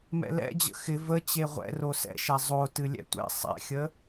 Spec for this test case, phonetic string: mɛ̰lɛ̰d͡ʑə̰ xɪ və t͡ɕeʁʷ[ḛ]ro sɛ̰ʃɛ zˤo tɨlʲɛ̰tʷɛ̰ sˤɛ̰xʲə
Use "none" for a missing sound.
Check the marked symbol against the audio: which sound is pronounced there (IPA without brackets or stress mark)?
ɛ̰